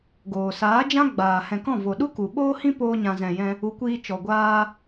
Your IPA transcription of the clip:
ɡ oː˨ s aː˨˦ d͡ʒ ã˦ ɡ͡b aː˨ h ɛ̃˨ k ɔ̃˦˨ v o˨ ɗ u˦ k u˨ ɓ oː˦ h ĩ˦ p oː˧ ɲ ã˨ z ɛ̃˨ j ɛ̃˧ | u˨˦ kʷ iː˧ t͡ʃ ɔ˨ ɡʷ aː˧

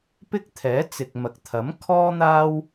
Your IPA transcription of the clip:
p ɪ˥ k̚ t̪ʰ ɛː˨˥ t͡s ɪ˨ k̚ m ɐ˨ k̚ t̪ʰ ɐ˨˥ m kʰ ɔː˥ n̪ aː˥ w

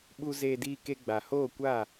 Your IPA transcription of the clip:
ɓ u˧ z eː˧ d iː˧ k e˧ ɡ͡b a˨ h oː˦˨ kʷ a˦˨

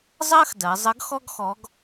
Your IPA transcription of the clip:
zˤ ɜ˥ x d ɜ˩˧ zˤ ə˧˥ ɡ x ɔ˥ ɡ x ɔ˧˥ ɡ

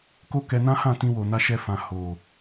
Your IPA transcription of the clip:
k o˦ k ɛ˧ n ã˦ h ã˦˨ t ĩ˧ w o˨ n a˧ ʃ ɛ˧ f ã˨ h o˨

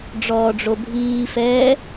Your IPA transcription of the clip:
ɖ͡ʐ ɔː ɖ͡ʐ o bʱ iː f ɛː

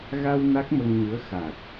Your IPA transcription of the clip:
ɣ a˧ w n a˦˥ k̚ m ə˧ ŋ ɲ ɨ˧˥ ə̯ x a˨˩ t̚

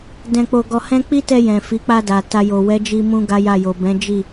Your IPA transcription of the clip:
d ɛ̃˧ k͡p o˧ ɡ ɔ˧ h ɛ̃˦ k͡p i˦ t ɛ˧ j ɛ̃˨ f i˨˦ k͡p a˧ d a˨ t a˧ j o˨ w ɛ˨˦ d͡ʒ i˧ m ũ˦ ɡ a˦ j a˦˨ j o˨ b ɛ̃˨˦ d͡ʒ i˦˨

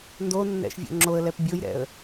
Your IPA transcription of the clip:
n d o nː ɛ̰ ʃ vʲ o̰ ŋ͡ǁ o ə̯ l ɛ p bʲ o j ɾ ɛ̰ ə̯

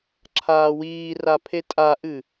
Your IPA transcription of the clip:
ǁʰ aː w iː r a pʰ e tʼ a ʔ ɨ

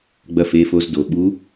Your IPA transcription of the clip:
ɡ͡b ɐ˧˥ f e˩˧˩ f o˧ z d o˩ ɓ u˧˥

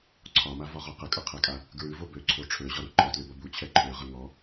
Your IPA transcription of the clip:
ǀʰ ɒ m a v ɒ ʁ ɔ q ə kʼ ʌ qʰ ɛ kʼ a | ɡ ɹ ʉ v o b ø ǀʰ o ʈ͡ʂʰ ø ʑ ɒ ɾ u ǃ ɒ t l ʉ b ʌ b u t͡ɕʰ ɛ ǃʰ ø ʁ ə ŋ ɔ

